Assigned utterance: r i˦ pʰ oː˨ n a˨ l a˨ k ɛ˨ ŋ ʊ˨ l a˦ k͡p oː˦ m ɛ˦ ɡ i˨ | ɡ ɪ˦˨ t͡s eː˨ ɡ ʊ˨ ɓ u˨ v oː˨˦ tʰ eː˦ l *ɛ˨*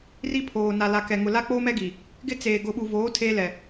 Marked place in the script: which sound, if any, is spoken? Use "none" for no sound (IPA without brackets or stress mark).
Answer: ɛ˨